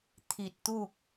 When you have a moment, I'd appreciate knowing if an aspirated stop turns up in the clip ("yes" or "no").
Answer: yes